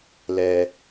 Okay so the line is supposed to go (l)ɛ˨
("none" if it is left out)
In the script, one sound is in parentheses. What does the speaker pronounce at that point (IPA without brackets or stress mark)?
l